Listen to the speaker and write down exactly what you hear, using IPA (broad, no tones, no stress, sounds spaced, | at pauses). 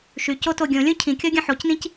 ʃ y c o t o ɡʲ õ lʲ õ cʰ ĩ kʲ ɔ ɡʲ ɐ̃ ħ o c n ĩ c